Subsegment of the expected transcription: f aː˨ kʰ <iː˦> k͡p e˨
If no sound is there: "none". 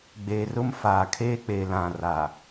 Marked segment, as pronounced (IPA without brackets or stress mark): eː˦